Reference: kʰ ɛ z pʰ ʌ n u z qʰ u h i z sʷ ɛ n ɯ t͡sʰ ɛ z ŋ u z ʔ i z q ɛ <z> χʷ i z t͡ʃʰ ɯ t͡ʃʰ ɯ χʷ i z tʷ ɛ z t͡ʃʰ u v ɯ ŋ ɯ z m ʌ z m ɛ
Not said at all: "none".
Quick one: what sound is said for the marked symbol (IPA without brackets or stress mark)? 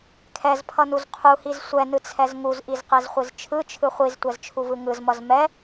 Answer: z